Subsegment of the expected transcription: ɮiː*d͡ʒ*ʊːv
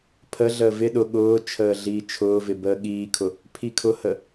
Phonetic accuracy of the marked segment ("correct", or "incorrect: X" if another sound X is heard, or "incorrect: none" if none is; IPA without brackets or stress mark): incorrect: t͡ʃʰ